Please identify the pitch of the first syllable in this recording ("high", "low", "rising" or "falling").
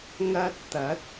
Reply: high